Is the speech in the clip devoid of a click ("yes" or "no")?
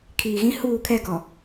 yes